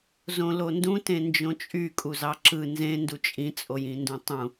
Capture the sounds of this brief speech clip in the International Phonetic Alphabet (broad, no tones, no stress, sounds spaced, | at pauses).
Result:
z õ l o n d ũ t ẽ n d͡ʒ õ t͡ʃʼ y kʼ u z ɑ ǁ ɯ n z ẽ n d u t͡ʃʼ ĩ t͡sʼ o j ĩ n d ũ tˤ ũ